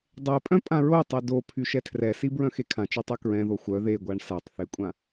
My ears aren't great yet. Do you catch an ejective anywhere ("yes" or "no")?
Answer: yes